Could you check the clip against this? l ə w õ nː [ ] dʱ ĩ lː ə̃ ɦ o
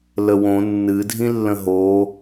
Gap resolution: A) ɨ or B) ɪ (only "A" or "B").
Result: A